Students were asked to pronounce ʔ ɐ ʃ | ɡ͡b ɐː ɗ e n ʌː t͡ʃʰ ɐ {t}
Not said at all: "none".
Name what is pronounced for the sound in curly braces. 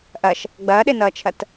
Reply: t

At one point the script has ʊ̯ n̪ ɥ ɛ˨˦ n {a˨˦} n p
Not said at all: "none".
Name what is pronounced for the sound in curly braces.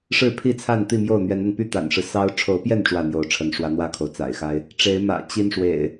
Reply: a˧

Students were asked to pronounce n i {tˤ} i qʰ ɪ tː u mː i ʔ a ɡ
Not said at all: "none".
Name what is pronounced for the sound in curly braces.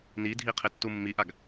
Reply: dʱ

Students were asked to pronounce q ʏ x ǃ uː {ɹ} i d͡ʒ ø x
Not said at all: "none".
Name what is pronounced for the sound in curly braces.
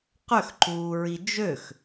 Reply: ɹ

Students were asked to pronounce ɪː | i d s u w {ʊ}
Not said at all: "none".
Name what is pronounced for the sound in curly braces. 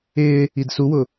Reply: ʊ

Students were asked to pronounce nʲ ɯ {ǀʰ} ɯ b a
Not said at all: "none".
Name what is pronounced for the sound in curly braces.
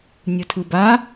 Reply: tʰ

